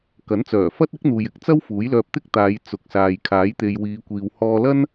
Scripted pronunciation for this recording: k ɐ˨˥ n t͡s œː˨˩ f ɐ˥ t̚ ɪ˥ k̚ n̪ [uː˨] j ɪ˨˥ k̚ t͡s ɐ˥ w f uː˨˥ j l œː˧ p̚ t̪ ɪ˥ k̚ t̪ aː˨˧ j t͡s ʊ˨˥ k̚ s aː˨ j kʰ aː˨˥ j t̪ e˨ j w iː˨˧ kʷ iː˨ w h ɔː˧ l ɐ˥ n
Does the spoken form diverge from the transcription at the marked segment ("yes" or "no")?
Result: no